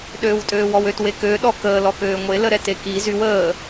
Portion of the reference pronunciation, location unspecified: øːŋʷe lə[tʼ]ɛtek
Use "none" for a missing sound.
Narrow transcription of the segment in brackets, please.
ɾ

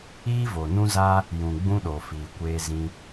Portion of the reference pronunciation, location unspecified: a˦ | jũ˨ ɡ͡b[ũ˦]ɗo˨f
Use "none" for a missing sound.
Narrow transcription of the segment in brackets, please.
ũ˦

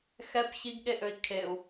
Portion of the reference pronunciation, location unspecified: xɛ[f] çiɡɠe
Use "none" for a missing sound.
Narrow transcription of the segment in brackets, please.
p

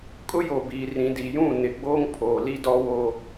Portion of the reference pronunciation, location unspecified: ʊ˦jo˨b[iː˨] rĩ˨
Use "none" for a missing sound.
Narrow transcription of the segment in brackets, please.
iː˨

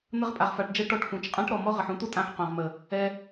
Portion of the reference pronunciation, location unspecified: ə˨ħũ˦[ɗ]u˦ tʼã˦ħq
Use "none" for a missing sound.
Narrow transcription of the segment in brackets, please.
t̪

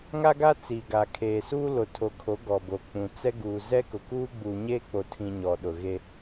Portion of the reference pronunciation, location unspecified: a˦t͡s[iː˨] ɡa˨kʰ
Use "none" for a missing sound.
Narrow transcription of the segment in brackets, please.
iː˨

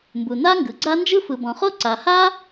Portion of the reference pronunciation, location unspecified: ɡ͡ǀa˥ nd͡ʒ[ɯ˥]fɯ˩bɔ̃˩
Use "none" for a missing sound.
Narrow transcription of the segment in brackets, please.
ɯ˥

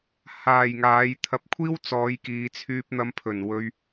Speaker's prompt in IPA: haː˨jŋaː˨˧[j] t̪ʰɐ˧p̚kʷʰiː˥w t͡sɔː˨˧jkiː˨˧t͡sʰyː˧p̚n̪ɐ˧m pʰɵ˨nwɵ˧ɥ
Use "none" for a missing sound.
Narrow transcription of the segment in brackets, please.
j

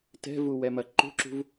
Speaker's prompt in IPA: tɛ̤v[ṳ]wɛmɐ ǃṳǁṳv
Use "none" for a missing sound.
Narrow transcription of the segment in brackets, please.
u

